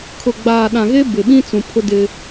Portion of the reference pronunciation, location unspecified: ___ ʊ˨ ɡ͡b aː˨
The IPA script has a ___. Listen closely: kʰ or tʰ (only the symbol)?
kʰ